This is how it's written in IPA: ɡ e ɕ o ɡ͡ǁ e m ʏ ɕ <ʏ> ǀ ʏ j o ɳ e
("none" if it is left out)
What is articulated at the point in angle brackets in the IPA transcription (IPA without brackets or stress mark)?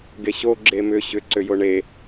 ʏ